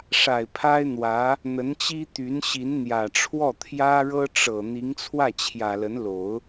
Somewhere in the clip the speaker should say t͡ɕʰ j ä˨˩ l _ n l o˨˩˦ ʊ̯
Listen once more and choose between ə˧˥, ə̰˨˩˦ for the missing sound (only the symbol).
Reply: ə˧˥